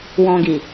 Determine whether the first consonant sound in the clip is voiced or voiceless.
voiced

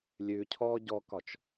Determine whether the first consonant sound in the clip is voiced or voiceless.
voiced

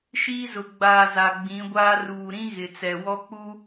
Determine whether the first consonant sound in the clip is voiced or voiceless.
voiceless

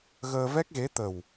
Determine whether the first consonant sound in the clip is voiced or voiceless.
voiced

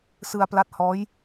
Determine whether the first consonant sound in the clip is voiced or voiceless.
voiceless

